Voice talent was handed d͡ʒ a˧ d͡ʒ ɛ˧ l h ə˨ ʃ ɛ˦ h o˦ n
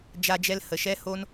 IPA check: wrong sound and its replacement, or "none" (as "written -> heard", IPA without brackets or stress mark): none